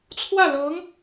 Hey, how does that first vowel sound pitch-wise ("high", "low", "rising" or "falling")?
falling